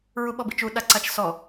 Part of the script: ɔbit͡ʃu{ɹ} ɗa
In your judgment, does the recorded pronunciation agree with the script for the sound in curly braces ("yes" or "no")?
no